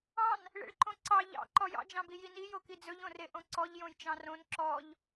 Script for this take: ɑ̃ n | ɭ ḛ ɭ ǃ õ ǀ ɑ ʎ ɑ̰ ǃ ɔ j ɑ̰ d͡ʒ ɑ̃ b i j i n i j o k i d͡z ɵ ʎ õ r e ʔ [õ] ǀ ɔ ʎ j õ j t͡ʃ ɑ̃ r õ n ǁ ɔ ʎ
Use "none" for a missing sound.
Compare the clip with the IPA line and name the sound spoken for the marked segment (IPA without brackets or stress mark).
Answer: õ